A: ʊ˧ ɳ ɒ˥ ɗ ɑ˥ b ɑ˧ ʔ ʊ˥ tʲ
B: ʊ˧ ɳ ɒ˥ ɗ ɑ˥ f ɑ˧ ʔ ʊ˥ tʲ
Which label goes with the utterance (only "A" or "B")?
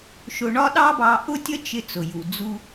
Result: A